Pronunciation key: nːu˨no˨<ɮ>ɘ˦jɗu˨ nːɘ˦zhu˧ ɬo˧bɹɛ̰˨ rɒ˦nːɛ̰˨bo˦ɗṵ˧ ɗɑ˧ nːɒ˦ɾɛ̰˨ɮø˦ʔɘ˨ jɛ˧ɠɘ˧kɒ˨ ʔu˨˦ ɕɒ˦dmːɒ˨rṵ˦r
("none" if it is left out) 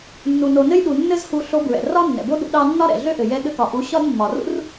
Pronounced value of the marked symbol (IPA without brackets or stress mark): n